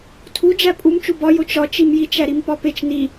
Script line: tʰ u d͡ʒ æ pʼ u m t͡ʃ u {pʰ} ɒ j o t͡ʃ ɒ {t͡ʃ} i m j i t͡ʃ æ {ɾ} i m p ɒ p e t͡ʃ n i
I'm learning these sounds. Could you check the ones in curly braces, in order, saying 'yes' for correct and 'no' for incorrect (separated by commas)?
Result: no, yes, yes